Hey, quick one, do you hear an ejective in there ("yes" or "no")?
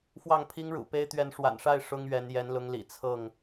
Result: no